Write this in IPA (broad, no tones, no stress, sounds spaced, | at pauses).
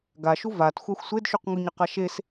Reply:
ɡ a ʃ u v a t xʷ a xʷ sʷ e d ʃ u q ŋ u ɲ ə q a ʃ e s